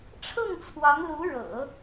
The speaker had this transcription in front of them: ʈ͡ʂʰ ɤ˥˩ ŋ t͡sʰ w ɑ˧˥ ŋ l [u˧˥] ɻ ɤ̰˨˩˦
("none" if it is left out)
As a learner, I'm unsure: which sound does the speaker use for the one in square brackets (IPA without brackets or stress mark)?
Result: u˧˥